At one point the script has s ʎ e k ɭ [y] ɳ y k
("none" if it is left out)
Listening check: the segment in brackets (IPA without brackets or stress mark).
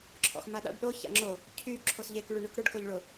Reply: y